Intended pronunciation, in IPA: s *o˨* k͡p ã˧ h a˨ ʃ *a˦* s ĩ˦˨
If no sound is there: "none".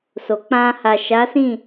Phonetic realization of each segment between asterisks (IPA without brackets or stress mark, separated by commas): o˨, a˨˦